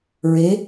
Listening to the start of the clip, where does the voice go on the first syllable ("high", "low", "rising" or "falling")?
rising